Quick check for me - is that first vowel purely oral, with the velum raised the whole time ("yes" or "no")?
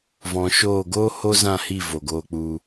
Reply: no